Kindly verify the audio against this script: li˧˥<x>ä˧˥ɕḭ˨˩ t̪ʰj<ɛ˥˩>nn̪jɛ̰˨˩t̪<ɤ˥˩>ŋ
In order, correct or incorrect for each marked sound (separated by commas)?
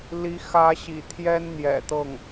correct, incorrect, correct